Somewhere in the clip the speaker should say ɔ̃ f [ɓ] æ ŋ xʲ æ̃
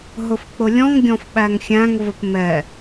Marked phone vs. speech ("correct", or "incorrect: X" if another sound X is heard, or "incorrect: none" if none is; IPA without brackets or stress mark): correct